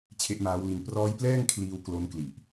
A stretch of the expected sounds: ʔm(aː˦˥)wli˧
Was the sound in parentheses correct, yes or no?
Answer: yes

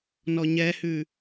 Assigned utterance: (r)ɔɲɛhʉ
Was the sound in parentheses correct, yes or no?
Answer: no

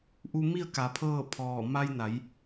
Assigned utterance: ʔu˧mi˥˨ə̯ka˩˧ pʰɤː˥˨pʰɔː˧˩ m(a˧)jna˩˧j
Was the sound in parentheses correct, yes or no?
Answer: yes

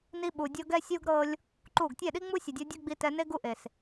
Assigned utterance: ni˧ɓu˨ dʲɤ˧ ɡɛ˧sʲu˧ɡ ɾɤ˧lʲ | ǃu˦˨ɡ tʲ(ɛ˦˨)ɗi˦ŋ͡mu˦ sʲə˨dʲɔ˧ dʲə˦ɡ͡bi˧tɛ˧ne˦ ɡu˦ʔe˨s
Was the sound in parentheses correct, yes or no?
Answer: yes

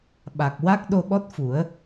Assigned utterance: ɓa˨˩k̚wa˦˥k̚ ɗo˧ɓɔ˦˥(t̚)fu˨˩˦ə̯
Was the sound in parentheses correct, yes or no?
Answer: yes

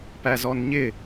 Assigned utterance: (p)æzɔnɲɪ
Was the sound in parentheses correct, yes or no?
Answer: yes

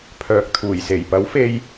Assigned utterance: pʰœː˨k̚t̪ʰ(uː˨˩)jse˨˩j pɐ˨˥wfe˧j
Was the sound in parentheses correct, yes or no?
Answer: yes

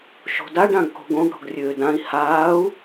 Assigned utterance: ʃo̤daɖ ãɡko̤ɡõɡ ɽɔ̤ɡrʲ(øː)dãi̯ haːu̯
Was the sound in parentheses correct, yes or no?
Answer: yes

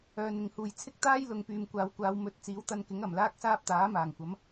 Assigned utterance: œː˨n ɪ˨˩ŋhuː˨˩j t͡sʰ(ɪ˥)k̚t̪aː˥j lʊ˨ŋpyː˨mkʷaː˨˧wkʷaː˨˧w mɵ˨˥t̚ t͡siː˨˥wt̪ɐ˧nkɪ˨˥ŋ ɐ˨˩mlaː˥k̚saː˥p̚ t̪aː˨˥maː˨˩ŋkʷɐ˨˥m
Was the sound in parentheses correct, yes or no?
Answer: yes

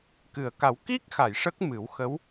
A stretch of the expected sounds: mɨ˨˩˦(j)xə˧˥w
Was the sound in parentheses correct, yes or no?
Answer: no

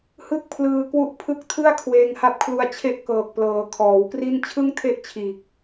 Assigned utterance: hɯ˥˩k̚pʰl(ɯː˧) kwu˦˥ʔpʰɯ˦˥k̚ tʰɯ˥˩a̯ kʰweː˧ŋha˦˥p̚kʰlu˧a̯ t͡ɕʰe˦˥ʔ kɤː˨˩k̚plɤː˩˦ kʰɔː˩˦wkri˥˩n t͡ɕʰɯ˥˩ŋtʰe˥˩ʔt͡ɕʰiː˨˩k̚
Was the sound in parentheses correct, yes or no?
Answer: yes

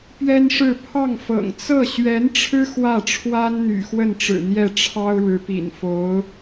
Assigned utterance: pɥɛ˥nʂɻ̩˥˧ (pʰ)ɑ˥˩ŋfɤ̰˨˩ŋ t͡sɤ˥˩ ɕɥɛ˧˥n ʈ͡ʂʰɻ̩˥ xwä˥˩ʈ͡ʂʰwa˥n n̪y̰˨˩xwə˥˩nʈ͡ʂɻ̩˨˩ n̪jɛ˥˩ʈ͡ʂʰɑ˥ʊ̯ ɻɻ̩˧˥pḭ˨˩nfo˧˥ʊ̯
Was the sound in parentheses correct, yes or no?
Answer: yes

